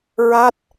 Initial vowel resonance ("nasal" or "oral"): oral